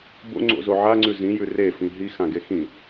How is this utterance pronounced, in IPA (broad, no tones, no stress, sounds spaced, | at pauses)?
b o̰ ŋ͡ǀ o̰ z o ʕ a ŋ͡ǀ ʉ z ĩ j ʉ r e f ĩ ɦ i x ã ɡ e x ĩ